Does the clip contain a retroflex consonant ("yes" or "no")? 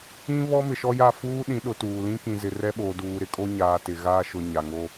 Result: no